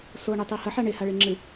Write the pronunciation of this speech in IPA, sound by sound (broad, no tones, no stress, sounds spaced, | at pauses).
s o ɳ i tˤ i h ɐ ħ a ɳ e h a ɭ e ŋ͡ǁ ɨ